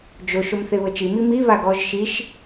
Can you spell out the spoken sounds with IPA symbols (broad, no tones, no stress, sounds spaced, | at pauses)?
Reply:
d͡ʒ o ʃ o m θ e β ɤ t͡ʃ i m i m i β a ɡ ɔ ʒ ʃ i ʃ